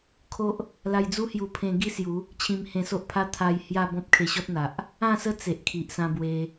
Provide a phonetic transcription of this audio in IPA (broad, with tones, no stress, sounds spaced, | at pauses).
kʰ o˦ ʔ | l a˧ j d͡z u˦ h j u˧ pʰ ẽ˧ ɡ i˥˧ s j u˨˦ | t͡ɕʰ ĩ˧ m h ẽ˧ s o˦ ʔ pʰ a˦ t̪ʰ a˧ j h j a˥˧ b ɔ̃˦ p̚ kʰ e˧ ɕ ɔ˦ t̚ n̪ a˨ ʔ | ã˥˧ s ə˦ t͡s e˨ ʔ kʰ i˨ ʔ s ã˧ b w e˧